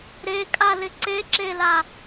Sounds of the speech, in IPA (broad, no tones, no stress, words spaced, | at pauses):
ɾekʼalɪ ǀeǁela